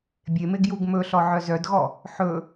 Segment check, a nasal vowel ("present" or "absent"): absent